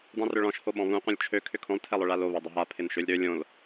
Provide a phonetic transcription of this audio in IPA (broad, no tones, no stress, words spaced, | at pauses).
dˤũrʏɭɔ̃ʃ hoɓɔ̃βũ qʷœ̃lʲt͡ʃʰø kʰʏkʰõlˠ tʰɛlˠœɭalo βɛdˤʏɦa pʰɪnʃølʲɾø lʲõl